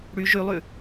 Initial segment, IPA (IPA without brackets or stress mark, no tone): ɽ